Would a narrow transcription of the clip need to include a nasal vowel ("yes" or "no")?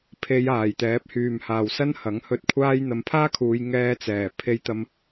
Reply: no